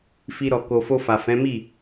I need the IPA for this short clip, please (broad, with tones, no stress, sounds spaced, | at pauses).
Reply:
f i˧ ɾ ɔ˨ k o˨ f o˧ f a˨ f ɛ̃˨˦ m i˦˨